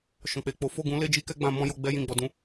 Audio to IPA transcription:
ʃ ɔ̃˨ k͡p e˨ k͡p o˨˦ f o˦˨ ɡ ũ˨˦ l e˦ d͡ʒ i˦ k ɛ˦ ɡ͡b ã˧ m ɔ̃˦ j o˧ ɡ͡b ɛ˦ j ĩ˦˨ ɡ͡b ɔ˧ d ũ˦

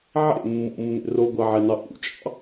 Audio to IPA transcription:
ʕ ḛ mː ṵ mː ḛ r o ɡʷ æ ʕ e n ɑ ʔ ṵ t͡ʃʼ ɑ̰

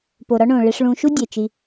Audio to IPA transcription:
p o˩ ɾ ɒ˦ ɳ õ˩ ɭ e˨ ʂ ɭ ũ˨ ʃ u˦ dʲ e˩ t͡ʃ i˨

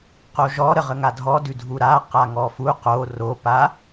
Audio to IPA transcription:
q o ʒ ɔ ɾ ə ʁ ə ŋ a dʱ ɔ d ʉ dʱ u ɾ a q a ŋ ɔ f u q o r o p a

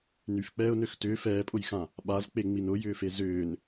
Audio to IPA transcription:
n y f k͡p ɛː ʊ̯ n ø x t ʏː f ɛː pʼ ʊ j x ã | ɓ a z k͡p e ŋ͡m i n ʊ j ʏː f e z ʏː n

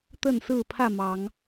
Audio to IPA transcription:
t̪ ə˥˨ n s ɹ̩˥˨ pʰ ä˥˨ m ɑ˨˦ ŋ

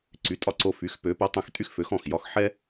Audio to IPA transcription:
ǀ y˩˥ tʼ ɒ˧ ǀ o˧ f y˩˥ x p ø˩˥ p ɛ˩˥ tˤ ɛ̃˧ x tʼ y˥ x f ø˩˥ x ɔ̃˥˩ x j ɒ˥ x ħ ɛ˥

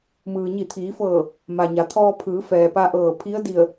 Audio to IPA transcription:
m ɯː˩ ɲ i˧˩ t̪ʰ iː˩˧ f ɤː˧˩ | m a˩ ɲ a˩ t̪ʰ ɔː˧ pʰ ɯː˩˧ f ɛː˩ p a˧ ʔ ɤː˧˩ pʰ i˧˥ ə̯ d i˧˩ ə̯

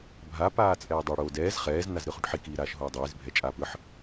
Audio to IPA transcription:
bʱ a p aː t͡sʼ ɛː dˤ o ɽ oː d ɛː z χ ɛː z n a z ɾ ɯ χ u ʈ ħ i k iː ɾ aː ʃ ɦ oː dˤ iː z bʱ ɛ t͡ʃʼ aː p ɯ ħ

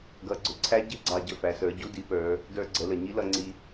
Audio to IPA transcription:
ɡ ʌ˩˧ ɡ͡ǀ ʊ˩˧ ǀʰ æ˧˥ ɟ ɪ˧˥ ɡ͡ǀ ɑ˧ ɟ ə˧ f æ˩˧ s ə˞˩˧ ɟ u˧˥ d i˩˧ p ə˞˩˧ | d ə˞˧ ɡ͡ǀ ə˩˧ l ə˩ ɲ i˧˥ l ʌ˧ ŋ͡ǀ i˧

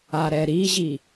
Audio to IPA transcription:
a ɾ ɛ ɾ i ʑ i

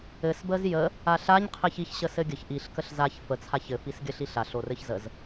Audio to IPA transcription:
ɘ s b ə z j ə | a ɬ a ɲ qʰ ɪ ç i ç ɕ ə s ɘ ɡʲ ə ç ʔ i ɬ k ə ɬ z a ç f ə t͡sʰ a ç ɘ f i s ɡʲ ə ɬ i ɬ a ɬ o r ɘ ç z ə z

